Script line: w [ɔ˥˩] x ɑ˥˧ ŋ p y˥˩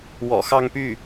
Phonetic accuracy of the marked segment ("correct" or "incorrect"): incorrect